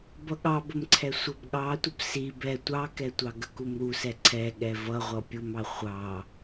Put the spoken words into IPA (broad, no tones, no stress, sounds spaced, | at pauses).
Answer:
b ʌ ɠ ɑ b ə m ǀʰ ɛ sʷ ʌ b ɠ ɑ tʷ ə b s i b ɛ tʷ ɑ k ɛ tʷ ɑ ɡ ə k u m ɾ u s ɛ ǀʰ ɛ ɠ ɛ v ʌ ʁʷ ʌ pʲ u m ɑ χʷ ɑ